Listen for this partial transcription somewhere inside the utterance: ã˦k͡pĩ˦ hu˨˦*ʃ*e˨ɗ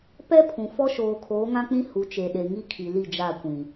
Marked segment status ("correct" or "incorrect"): incorrect